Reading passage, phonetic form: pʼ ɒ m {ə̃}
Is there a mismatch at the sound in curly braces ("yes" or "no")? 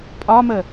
yes